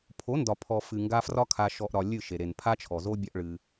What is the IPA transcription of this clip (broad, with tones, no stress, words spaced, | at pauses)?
pʰo˨˦ndɒ˨pʰɔ˨ fɨ˨ŋɡa˧ frɒ˧kʰa˨ʃɔ˨ʔɾɒ˨ lʲɨ˦˨ʃe˨ ɾe˨npʰa˦t͡ʃʰɔ˨zo˦ bʲɒ˦ʔɭɨ˧